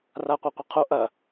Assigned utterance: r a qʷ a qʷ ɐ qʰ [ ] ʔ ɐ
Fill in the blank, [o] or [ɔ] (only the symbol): o